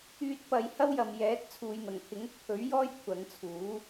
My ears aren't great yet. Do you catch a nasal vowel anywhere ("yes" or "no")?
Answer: no